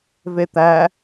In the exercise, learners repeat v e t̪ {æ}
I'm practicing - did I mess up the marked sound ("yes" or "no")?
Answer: no